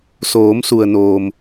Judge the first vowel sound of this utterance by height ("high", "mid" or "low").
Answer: mid